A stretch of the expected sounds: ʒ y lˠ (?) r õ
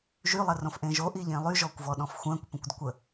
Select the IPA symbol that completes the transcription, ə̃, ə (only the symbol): ə